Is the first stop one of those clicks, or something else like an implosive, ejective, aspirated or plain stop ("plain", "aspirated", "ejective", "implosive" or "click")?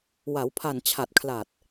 aspirated